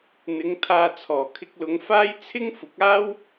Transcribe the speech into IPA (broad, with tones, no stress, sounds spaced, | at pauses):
n̪ ɪ˨˧ ŋ t̪ʰ aː˨ t͡sʰ ɔː˨˩ kʰ ɪ˧ k̚ l ʊ˨˧ ŋ f aː˥ j t͡sʰ ɪ˥ ŋ f ʊ˨˥ k̚ aː˥ w